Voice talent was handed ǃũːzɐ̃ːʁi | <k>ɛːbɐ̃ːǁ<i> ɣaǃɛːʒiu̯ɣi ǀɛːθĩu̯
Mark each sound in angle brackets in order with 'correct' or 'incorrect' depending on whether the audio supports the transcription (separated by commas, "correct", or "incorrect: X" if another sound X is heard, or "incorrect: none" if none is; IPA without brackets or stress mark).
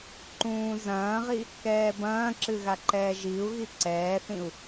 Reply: correct, incorrect: ɨ